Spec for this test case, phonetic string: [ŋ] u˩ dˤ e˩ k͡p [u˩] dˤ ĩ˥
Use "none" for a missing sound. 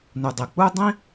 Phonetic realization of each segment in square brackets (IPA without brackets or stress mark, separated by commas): n, u˥